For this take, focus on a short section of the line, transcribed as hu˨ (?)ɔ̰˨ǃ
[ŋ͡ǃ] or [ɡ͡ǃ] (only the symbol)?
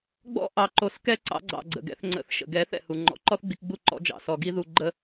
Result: ŋ͡ǃ